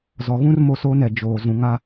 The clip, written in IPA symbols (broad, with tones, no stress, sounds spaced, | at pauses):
z ɔ˨ ɣ ũ˦ r m o˦ s oː˦ n ɛ˨ d͡ʒ oː˨ z ũ˨ ŋ a˦